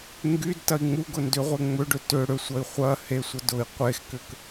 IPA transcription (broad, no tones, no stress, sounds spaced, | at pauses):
ŋ ɡ y d t ɐ i̯ ŋ͡m u ɡ ʊ n d ʏ ʁʷ e ŋ͡m ʏ ɖ ʏ t ʏ ɽ ʏ sʷ ɐ i̯ χʷ ɐ h e sʷ ɐ d ʊ i̯ qʷ e x k ʏ k